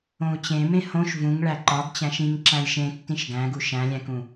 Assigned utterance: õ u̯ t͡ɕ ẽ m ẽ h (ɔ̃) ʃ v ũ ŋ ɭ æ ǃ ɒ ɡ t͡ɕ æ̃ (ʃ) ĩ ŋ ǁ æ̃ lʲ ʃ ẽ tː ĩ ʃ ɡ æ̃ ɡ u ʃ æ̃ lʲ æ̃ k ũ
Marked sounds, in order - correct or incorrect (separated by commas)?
incorrect, correct